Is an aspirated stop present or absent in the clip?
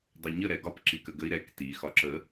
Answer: absent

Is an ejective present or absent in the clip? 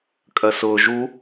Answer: present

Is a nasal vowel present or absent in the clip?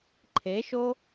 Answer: absent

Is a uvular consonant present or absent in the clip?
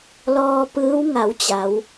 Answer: absent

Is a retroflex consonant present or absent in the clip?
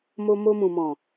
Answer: absent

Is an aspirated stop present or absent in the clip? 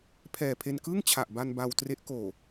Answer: present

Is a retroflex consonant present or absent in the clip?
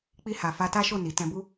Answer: absent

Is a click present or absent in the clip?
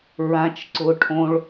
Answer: present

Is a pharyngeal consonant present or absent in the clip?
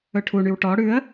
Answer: absent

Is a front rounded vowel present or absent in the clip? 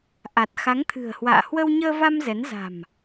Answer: absent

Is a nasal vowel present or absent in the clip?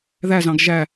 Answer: present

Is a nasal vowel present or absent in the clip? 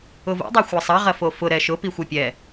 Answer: absent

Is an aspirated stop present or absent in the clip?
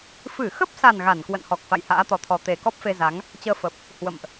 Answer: present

